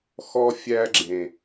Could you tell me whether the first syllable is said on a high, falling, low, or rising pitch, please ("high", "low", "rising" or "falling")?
high